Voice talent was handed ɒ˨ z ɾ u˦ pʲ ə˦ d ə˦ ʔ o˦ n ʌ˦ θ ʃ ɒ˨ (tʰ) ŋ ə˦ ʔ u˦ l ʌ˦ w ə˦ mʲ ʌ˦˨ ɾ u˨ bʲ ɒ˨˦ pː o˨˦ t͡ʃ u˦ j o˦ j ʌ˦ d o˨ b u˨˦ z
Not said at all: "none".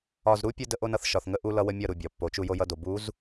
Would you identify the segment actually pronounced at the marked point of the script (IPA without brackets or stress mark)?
θ